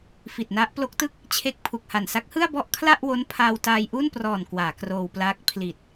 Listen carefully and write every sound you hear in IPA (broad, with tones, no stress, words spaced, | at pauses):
fi˨˩t̚na˦˥ʔ plo˦˥k̚tɯ˥˩k̚ | t͡ɕʰe˦˥k̚ pʰu˨˩k̚ha˨˩n sa˦˥k̚hɯ˥˩a̯ bɔ˥˩ʔkʰla˥˩ʔwo˦˥n pʰaː˧wtaː˧jʔu˥˩nprɔː˨˩n kwaː˩˦kroː˧wplaː˦˥k̚ pʰli˨˩t̚